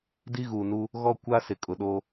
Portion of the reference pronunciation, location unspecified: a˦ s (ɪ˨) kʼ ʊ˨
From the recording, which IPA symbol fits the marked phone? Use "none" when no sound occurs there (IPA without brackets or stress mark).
ɪ˨